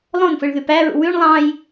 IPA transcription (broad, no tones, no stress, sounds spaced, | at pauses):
lˠ õ n f ɯ ɭ ð y p æ ɹ ṵ w y ɳ lˠ ɑ̃ j